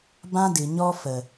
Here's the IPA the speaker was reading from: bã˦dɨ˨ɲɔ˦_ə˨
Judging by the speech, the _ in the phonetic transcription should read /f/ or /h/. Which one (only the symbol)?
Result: f